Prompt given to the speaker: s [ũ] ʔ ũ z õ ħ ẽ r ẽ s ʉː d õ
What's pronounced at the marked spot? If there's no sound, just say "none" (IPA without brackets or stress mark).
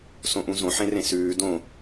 õ